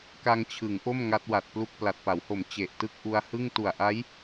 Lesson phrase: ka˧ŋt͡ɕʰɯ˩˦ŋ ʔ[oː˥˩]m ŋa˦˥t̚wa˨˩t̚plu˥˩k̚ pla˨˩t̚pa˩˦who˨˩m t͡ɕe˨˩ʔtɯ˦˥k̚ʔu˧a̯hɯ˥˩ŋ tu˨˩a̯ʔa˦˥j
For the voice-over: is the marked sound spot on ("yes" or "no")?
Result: no